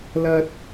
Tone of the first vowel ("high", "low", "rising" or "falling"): high